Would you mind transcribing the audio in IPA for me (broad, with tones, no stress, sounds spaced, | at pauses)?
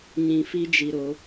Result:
ɲ ĩ˨ f i˦ d͡ʒ i˨ ɾ o˨˦